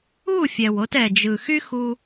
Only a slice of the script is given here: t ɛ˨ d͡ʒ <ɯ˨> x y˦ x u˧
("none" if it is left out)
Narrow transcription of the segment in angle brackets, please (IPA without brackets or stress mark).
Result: ɯ˨